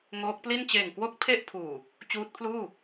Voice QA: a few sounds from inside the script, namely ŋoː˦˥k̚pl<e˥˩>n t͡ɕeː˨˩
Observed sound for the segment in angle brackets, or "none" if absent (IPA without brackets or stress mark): i˥˩